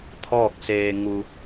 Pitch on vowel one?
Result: falling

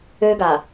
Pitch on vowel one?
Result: high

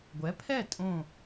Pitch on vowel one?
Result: rising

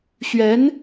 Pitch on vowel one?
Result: rising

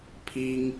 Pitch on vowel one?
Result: high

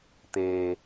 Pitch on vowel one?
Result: low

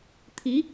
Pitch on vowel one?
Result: rising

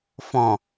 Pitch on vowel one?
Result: low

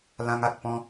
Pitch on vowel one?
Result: high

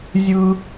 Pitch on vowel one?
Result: high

